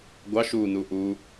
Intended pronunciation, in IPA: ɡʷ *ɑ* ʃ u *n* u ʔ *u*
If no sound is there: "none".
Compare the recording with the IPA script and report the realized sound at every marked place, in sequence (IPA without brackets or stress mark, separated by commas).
ɑ, n, u